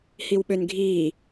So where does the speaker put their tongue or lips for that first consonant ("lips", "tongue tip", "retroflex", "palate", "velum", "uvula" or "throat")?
throat